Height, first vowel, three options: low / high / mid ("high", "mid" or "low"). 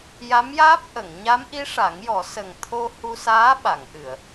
low